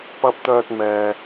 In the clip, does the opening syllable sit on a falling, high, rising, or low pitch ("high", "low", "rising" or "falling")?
low